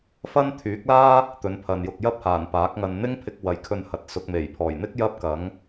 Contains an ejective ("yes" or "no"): no